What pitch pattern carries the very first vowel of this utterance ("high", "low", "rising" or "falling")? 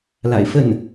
low